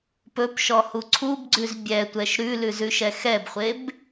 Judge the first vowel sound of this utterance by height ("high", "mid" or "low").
mid